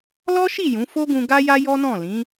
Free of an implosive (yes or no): yes